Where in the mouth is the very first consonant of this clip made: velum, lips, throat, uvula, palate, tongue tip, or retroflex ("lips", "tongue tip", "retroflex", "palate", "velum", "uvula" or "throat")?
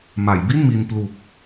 lips